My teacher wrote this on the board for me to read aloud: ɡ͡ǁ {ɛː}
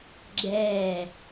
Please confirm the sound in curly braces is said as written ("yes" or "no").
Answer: yes